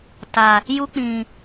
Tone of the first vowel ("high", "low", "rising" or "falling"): low